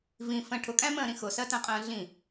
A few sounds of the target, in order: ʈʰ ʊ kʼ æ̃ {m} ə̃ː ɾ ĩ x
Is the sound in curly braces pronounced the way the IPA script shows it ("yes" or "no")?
yes